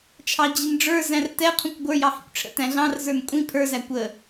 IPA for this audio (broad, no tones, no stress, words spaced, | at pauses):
t͡ʃʰɑd͡ʑinɖ͡ʐə˞zæ̃r tɛqʰũkʷ ɡʷə˞jɑ hḭkʷʈ͡ʂʰə̰tæ̃ ɮɑ̃rzə˞n kʷʼĩ pʰə˞zæ kʷə